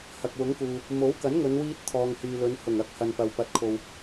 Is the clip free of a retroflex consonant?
yes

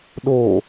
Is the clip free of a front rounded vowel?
yes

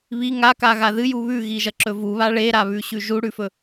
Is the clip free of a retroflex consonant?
no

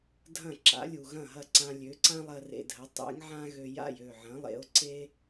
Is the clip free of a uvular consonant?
yes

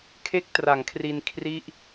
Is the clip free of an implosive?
yes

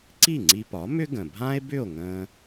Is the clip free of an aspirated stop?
yes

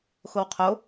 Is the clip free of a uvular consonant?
no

